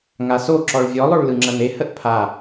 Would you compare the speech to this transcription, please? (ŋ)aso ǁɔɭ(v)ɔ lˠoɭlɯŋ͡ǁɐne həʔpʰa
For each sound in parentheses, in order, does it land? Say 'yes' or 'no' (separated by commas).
yes, no